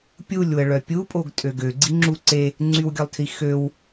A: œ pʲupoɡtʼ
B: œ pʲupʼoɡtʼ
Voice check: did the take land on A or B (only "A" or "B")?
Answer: B